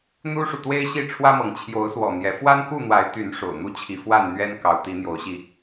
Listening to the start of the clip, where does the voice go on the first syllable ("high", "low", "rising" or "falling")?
high